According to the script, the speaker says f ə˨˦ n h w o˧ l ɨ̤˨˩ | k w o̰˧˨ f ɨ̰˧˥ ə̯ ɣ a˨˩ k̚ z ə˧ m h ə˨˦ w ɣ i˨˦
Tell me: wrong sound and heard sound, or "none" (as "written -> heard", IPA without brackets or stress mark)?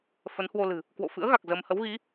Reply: none